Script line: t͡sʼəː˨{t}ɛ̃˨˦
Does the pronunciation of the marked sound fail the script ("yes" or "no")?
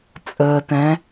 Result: no